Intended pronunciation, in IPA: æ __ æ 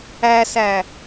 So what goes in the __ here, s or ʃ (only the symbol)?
s